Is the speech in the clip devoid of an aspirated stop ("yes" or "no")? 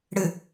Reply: yes